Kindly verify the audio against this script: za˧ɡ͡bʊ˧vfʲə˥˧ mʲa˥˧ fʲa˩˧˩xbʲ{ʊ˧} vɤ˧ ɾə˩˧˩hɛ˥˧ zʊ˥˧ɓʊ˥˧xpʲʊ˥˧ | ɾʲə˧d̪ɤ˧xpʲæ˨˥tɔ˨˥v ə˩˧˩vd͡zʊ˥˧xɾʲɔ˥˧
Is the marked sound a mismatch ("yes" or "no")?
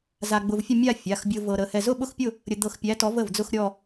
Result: no